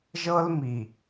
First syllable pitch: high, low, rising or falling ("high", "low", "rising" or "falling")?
high